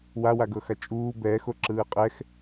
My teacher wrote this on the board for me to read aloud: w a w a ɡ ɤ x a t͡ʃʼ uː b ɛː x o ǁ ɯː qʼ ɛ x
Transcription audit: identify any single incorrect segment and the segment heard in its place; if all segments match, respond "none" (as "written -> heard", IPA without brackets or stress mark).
none